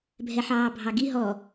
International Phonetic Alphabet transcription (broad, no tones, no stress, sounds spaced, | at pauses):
bʱ ɛ ħ ɑː bʱ ɑ ɡ i ɦ ɔ